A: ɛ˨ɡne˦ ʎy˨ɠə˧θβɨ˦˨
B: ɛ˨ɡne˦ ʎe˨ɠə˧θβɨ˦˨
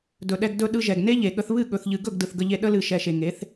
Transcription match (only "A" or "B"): B